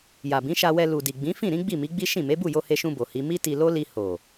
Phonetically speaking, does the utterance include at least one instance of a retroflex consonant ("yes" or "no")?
no